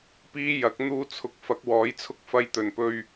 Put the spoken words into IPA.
piː˥jɐ˨˥k̚ n̪uː˧t͡sʰʊ˨k̚ fɐ˨˥k̚wɔː˨˥jt͡sʰʊ˥k̚ fɐ˧jt̪ɵ˨˩npɵ˧ɥ

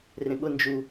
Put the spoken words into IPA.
rẽɠʊ nd͡ʒu

